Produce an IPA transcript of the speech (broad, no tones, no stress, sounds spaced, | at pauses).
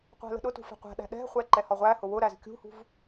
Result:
qʷ æ̤ l ə̤ ɗ ʊ t ṳ f ɛ̤ qʷ æ̤ ɗ æ̤ ɗ ɛ̤ χʷ ɛ ǃ ɛ h ɒ ʁʷ æ h ʊ w ʊ ɾ æ z kʲ ṳ h ṳ v